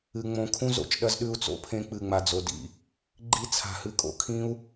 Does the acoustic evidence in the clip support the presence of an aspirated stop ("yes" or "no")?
yes